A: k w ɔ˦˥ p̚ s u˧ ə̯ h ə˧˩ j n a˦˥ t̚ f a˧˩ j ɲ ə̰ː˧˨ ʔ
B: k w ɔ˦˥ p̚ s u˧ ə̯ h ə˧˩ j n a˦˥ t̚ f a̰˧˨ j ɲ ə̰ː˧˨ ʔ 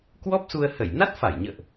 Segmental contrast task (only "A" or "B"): A